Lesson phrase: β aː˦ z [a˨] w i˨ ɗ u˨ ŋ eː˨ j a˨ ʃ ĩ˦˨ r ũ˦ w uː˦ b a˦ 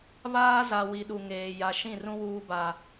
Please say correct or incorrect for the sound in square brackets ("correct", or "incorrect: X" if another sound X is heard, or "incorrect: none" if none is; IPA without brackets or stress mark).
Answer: correct